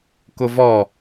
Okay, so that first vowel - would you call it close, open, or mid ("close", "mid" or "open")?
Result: close